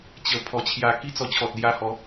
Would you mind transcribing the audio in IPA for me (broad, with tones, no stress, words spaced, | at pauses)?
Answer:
t͡ɕə˨˩pʰɔ˨˩t͡ɕʰja˧ ki˥˧t͡sɔ˧t͡ɕʰɔ˨t̚lja˧ hɔ˨˦